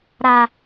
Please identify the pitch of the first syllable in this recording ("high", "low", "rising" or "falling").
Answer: low